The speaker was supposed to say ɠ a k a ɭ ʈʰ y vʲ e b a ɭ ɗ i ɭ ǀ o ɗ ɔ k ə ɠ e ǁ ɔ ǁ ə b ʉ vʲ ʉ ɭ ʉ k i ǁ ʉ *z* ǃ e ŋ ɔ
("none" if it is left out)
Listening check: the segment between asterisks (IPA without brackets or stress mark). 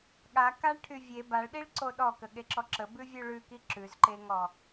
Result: z